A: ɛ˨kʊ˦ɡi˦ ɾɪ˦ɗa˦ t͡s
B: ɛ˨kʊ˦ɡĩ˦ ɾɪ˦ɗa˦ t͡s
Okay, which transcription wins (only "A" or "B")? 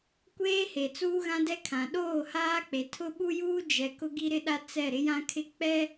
A